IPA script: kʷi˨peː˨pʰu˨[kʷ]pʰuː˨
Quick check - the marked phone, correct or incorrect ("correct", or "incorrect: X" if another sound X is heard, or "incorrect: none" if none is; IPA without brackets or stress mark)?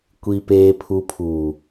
incorrect: none